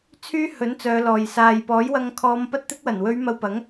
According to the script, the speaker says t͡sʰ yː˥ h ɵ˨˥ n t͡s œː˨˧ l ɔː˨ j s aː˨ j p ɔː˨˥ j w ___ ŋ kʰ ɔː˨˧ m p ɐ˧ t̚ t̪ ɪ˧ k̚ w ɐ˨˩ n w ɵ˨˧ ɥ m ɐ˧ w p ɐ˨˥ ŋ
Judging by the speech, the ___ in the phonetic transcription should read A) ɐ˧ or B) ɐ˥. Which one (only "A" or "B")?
A